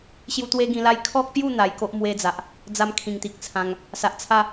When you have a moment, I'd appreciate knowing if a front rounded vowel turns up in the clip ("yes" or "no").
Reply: no